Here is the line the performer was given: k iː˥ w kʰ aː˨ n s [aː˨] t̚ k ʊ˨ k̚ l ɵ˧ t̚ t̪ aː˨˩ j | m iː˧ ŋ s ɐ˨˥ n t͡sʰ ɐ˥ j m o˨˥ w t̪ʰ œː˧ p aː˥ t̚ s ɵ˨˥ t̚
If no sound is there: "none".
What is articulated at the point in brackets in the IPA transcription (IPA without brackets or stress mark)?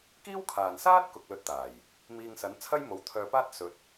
aː˥